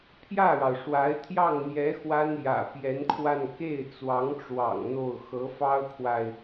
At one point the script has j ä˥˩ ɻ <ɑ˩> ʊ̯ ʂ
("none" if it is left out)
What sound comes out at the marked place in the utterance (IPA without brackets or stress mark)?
ɑ˩